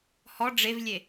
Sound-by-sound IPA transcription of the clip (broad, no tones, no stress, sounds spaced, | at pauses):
h ɔ ɖ͡ʐ e v lʲ e